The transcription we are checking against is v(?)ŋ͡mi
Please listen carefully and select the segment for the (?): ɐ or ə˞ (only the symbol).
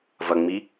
ɐ